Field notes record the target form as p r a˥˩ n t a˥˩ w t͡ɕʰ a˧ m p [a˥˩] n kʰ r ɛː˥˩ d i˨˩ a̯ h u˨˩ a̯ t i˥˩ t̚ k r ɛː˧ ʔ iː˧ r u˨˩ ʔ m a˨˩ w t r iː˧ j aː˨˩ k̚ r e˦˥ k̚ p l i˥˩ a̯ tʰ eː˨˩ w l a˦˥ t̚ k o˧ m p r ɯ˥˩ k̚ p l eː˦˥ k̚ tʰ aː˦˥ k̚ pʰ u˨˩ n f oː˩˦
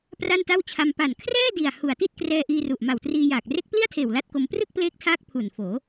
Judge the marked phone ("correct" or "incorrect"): incorrect